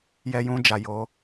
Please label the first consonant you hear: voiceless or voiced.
voiced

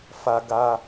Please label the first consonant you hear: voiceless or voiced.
voiceless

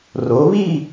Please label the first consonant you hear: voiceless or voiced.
voiced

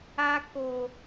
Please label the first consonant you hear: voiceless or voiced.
voiceless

